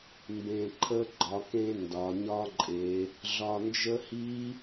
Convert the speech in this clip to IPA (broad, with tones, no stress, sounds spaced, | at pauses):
m b ẽ˧ ǃʰ ə˦˥ ɡ͡ǃ ɒ˩˥ k ẽ˦˥ n d ɒ˩˧ ɲ ɒ˦˥ ǃʼ e˩˧ | ɮ ɒ˧ n d͡ʒ ə˦˥ h i˦˥